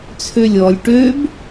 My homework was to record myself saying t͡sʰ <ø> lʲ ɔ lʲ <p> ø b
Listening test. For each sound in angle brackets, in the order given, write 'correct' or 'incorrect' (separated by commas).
correct, incorrect